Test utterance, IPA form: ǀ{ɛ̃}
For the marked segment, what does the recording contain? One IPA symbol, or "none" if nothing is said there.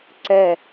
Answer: ɛ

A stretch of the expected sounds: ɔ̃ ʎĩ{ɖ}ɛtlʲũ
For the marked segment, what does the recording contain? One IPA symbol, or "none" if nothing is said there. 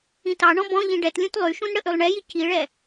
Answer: ɖ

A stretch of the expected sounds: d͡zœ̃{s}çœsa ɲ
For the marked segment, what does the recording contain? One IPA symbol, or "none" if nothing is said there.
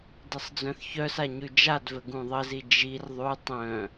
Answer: θ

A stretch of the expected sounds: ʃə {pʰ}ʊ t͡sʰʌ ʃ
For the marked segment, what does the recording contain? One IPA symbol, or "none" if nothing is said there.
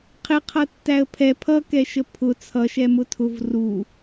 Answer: pʰ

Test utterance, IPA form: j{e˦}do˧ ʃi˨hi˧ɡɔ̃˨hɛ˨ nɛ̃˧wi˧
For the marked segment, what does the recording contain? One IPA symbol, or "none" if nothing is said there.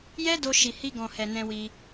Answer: ɛ˦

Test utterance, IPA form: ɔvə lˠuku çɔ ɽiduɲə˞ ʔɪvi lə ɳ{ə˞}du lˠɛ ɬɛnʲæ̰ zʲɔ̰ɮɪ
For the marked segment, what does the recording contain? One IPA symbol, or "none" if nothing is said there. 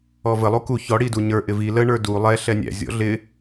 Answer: ə˞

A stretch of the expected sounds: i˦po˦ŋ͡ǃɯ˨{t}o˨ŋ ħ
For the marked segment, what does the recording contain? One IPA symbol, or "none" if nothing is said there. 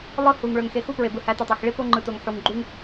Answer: t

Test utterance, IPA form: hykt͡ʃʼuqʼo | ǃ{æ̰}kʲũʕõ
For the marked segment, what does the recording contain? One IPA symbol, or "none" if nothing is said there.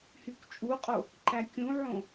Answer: æ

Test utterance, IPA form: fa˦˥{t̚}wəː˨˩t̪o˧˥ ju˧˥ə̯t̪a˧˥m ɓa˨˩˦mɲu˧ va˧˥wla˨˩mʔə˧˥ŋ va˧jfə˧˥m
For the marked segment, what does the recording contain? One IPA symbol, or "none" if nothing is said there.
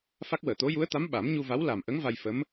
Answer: k̚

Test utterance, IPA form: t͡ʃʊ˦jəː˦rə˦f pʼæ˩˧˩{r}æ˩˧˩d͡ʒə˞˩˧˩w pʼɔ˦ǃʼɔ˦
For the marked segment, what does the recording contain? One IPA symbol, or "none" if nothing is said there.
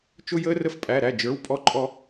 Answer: ɾ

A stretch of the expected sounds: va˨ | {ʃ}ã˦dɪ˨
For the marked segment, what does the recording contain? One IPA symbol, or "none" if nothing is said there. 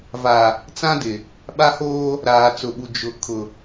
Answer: t͡s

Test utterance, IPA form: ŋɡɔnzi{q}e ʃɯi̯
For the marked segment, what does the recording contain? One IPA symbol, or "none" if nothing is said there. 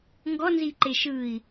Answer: ǃ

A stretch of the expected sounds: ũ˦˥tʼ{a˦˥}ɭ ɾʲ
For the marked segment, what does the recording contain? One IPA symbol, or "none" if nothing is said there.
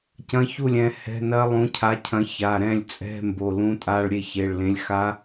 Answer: a˧˥˧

